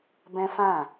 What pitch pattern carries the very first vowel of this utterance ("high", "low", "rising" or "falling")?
high